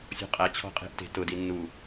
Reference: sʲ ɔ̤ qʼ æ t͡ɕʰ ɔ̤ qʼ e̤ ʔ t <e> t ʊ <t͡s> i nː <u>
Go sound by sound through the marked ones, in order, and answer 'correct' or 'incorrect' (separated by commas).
incorrect, incorrect, correct